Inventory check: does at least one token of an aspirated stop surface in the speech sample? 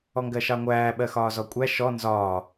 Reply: no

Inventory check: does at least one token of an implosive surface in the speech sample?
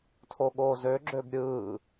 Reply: yes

